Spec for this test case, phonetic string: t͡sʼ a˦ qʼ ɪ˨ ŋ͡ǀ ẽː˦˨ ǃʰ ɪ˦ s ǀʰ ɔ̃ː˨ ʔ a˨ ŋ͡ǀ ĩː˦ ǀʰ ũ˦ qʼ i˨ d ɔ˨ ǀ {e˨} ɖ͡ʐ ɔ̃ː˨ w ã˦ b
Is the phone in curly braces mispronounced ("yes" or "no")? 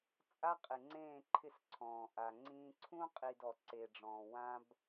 no